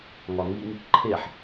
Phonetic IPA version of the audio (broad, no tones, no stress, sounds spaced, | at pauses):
ŋ ɒ ŋ i ŋ | ǃʰ e ħ